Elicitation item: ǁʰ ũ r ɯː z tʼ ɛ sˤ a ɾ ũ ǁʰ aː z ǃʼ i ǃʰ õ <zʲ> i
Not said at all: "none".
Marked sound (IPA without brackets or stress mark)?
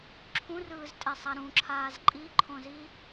z